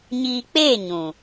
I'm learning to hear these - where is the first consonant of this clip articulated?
palate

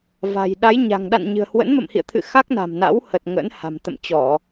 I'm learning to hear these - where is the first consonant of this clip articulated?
lips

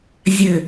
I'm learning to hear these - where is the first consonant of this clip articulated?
tongue tip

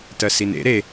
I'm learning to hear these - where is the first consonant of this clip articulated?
tongue tip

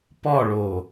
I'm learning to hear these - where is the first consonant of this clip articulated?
lips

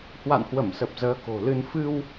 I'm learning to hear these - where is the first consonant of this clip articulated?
throat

